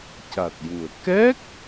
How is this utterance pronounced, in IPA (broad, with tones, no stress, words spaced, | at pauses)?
ca˨˩t̚ju˨˩ə̯ kɛ˦˥k̚